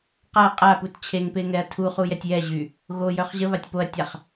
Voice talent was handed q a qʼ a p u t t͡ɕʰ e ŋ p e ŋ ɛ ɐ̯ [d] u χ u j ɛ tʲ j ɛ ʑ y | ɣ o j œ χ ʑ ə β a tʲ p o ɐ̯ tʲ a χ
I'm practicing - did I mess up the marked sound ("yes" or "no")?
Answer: yes